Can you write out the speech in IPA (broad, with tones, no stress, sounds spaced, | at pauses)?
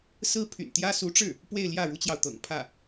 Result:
s ɹ̩˥ pʰ y̰˨˩ n t̪ j ä˥ s u˧˥ ʈ͡ʂ ɻ̩˥˩ | p w e˥˧ ɪ̯ l j ä˥˩ ɻ u˥ t͡ɕ j ɑ˨ ʊ̯ t̪ ɤ̰˨˩ ŋ pʰ ä˥˩